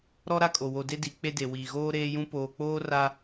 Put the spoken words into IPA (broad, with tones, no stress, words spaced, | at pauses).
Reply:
ɾɔ˦ɾa˦˨kʼo˨wo˨ de˦di˨˦ k͡pe˦de˨ wiː˨ɣoː˦ɾeː˦jũ˦ poː˨k͡poː˦ ra˦